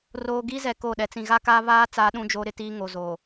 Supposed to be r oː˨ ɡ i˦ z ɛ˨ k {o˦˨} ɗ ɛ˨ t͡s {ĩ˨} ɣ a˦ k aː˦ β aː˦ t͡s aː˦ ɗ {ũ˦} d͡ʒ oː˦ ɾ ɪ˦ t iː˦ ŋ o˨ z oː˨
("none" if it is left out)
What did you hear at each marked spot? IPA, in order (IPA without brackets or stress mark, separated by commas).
o˦˨, ĩ˨, ũ˦